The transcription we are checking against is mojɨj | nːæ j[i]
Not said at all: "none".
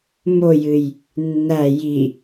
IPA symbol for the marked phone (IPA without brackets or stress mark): i